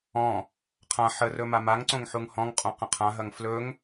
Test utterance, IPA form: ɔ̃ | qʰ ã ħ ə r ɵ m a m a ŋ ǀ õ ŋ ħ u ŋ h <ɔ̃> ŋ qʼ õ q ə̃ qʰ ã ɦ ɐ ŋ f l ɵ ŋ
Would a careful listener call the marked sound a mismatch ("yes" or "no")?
no